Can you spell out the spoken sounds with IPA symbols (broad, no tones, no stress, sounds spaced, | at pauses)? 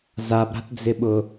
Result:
z a b ɾ a̤ t d͡z ɪ ɓ ʊ